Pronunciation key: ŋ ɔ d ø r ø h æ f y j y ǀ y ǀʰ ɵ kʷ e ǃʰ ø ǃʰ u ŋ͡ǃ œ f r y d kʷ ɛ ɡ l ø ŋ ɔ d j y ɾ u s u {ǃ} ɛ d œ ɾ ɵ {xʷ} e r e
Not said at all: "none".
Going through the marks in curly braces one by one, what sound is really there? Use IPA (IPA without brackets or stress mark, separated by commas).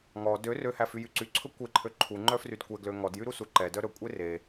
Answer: ǃ, kʷʼ